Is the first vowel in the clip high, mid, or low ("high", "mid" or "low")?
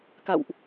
low